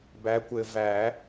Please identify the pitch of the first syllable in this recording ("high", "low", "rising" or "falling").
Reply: rising